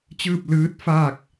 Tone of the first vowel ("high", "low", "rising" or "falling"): falling